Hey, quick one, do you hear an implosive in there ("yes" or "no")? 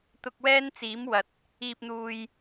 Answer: no